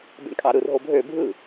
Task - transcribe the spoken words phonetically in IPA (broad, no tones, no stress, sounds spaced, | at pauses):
b ḛ ɳ kʼ ɑ ɾ ɯ r ɦ o bʱ ø bʱ ɯ